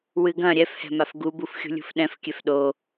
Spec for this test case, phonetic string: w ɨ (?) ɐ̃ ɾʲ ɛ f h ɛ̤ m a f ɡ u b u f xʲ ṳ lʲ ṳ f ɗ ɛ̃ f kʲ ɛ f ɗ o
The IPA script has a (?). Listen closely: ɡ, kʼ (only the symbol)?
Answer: ɡ